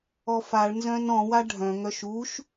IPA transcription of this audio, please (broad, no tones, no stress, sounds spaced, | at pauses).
ɔ f a ɭ n z œ̃ n ɔ̃ w a ɖʱ œ̃ ŋ œ ʃ u ʃ